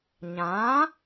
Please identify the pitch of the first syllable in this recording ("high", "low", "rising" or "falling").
rising